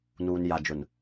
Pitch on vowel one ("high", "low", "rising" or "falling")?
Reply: low